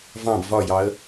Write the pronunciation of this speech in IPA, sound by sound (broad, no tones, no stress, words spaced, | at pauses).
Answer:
vɑ̃b vɒjɑə̯